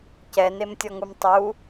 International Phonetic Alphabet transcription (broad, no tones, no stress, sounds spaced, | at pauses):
c ɛ n e m tʲ ɔ ŋ u m tˤ u